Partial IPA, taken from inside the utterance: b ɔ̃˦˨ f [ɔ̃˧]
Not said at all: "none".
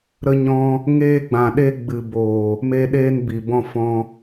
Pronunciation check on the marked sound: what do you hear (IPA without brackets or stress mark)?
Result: ɔ̃˧